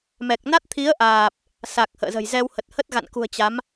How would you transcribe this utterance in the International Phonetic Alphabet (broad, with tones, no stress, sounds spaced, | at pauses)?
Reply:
m ɛ˨˩ k̚ n a˦˥ t̚ t̪ʰ i˨˦ ə̯ ʔ aː˨˩ p̚ | s a˨˩ k̚ h ə̰ː˧˨ z ə̤˨˩ j z ɛ˧ w h ə˨˩ t̚ h ə˦˥ t̚ ɣ a̰˧˨ n k ṳ˨˩ ə̯ t͡ɕ a˨˦ m